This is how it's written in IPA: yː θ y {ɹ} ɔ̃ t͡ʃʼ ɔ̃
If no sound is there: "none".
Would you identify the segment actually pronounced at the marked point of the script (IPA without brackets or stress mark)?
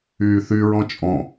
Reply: ɹ